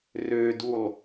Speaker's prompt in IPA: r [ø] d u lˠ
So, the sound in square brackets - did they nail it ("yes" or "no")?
yes